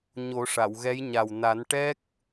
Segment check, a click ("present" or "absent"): absent